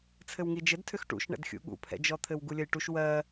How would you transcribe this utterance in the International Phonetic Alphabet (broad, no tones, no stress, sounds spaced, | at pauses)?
t͡sʰ ɘ w ŋ i d͡ʒ ɘ d tʰ ʏ x ʈ ṵ ʃ ɳ ɛ̰ d xʲ ṵ ɠ ṵ pʰ ɛ̰ d͡ʒ ɔ t̪ʰ ɘ w ɡ u lʲ ə j ʈ u ʃ w ɜ